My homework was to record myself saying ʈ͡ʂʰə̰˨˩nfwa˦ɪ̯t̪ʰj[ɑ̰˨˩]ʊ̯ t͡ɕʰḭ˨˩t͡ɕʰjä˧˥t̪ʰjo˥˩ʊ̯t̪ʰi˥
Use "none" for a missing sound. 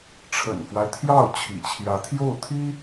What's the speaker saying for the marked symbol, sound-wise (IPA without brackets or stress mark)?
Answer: ɑ˥˩